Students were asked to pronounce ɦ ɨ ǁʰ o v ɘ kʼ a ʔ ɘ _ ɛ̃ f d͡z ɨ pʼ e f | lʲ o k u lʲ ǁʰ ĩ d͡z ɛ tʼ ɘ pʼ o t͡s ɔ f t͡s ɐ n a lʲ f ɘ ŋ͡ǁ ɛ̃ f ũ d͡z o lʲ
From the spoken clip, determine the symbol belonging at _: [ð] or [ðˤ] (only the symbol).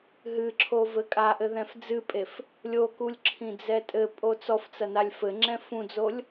ð